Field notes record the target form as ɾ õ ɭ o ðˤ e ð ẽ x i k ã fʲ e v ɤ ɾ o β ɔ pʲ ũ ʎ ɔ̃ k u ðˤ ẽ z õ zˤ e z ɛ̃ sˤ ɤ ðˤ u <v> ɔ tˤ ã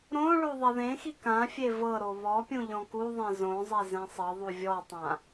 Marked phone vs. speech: incorrect: vʲ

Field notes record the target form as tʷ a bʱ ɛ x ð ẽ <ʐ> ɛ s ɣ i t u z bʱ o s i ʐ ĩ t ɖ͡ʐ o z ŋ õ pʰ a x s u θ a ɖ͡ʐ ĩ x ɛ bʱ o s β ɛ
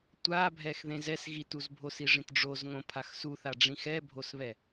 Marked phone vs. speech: incorrect: z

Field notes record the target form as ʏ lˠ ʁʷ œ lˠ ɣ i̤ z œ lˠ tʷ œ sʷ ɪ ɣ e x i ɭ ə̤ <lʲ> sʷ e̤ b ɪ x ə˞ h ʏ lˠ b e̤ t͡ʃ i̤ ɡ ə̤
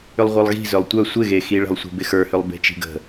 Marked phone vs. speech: incorrect: lˠ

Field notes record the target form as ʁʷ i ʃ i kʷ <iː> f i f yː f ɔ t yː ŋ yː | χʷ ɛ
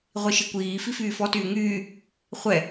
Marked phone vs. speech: correct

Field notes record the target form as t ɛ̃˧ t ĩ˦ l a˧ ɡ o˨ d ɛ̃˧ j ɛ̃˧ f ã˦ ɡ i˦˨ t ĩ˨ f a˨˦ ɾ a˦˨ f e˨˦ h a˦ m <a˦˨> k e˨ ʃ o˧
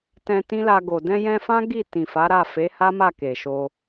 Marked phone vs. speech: correct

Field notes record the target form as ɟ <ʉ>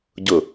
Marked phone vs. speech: incorrect: ʊ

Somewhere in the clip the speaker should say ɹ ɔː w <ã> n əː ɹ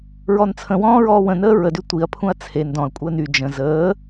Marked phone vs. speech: incorrect: ə̃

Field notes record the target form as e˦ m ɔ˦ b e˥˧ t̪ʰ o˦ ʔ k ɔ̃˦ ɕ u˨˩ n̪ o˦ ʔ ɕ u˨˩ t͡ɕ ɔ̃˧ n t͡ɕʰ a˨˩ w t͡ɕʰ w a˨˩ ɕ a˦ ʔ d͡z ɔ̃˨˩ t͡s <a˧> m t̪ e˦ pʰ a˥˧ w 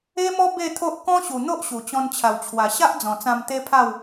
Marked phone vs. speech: incorrect: ã˧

